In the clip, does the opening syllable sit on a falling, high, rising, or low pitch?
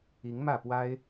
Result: rising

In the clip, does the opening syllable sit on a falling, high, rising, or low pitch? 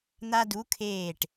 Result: high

